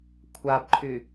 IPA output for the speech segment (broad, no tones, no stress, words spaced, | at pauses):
kʷʰabǃʰy